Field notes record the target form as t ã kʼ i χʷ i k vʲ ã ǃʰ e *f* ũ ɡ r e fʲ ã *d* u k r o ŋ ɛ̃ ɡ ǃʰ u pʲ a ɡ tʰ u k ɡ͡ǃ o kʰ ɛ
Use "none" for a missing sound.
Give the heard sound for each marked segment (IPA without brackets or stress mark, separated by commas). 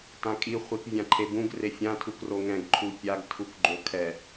b, tʰ